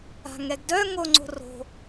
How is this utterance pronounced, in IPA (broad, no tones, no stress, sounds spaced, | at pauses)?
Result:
a̤ ŋ ɛ ɡ d œ ŋ o ŋ͡ǀ o̤ r o̤